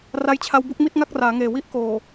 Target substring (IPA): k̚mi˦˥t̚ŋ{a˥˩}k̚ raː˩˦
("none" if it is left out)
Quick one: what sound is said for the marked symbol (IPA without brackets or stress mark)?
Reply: a˥˩